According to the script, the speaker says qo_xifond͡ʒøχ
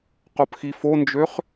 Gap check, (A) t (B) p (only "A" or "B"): B